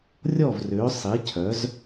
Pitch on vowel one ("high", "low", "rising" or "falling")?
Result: falling